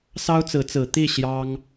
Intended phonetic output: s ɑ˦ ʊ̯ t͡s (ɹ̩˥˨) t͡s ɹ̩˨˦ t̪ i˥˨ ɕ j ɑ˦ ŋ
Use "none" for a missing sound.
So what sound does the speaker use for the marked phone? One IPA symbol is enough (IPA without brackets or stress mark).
ɹ̩˨˦